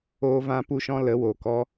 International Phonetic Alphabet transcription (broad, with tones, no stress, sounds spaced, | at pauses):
oː˦ v ã˦ p u˦ ʃ ɔ̃˦ l ə˨˦ w o˨ k ɔ˧